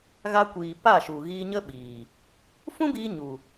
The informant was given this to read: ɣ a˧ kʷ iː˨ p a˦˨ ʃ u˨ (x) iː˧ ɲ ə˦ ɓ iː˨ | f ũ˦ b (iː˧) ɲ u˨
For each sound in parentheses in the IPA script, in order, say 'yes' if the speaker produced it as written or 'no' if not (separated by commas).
no, yes